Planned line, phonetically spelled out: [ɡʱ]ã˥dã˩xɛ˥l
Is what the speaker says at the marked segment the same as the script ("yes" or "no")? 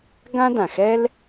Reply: no